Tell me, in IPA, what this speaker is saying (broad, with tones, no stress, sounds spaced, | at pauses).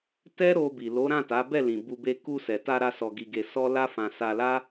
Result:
t ɛ˦ ɾ o˧ b i˨ l o˨˦ ɾ ã˦˨ t a˨˦ b ɛ˦˨ l ĩ˨ b u˧ b e˧ k u˧ s ɛ˨ t a˧ ɾ a˧ s ɔ˧ ɡ i˧ ɡ e˧ s ɔ˦ l a˦ f ã˧ s a˧ l a˦